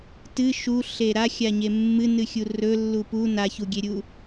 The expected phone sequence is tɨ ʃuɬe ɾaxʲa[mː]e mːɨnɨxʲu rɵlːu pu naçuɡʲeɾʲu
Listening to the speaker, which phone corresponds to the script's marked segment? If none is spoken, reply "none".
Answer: ɲ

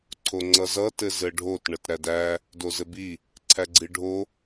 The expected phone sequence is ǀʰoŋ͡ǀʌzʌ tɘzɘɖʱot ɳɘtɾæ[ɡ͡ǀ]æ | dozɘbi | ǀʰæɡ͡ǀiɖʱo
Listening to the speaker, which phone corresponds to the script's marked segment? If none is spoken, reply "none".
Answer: d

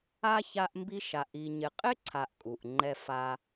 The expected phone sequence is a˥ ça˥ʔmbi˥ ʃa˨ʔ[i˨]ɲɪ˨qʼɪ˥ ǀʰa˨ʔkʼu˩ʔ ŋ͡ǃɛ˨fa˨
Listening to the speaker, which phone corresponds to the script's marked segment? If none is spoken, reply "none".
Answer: i˨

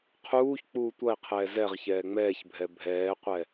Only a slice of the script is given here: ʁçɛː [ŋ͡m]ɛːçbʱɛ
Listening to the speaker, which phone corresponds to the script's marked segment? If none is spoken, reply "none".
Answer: ŋ͡m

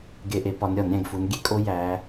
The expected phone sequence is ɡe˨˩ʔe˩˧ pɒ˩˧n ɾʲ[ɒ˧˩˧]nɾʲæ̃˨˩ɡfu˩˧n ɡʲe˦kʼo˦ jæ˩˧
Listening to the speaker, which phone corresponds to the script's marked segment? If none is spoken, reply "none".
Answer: ɒ˧˩˧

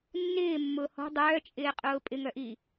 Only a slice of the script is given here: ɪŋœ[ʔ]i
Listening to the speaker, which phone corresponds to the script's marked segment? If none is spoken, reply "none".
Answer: ʔ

